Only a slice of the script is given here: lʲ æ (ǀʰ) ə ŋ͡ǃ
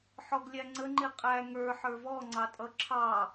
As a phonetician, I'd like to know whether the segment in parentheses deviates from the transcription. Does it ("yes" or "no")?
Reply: yes